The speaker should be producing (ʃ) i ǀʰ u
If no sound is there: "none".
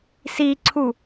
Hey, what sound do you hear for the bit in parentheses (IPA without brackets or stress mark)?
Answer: s